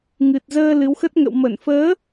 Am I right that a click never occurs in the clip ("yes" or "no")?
yes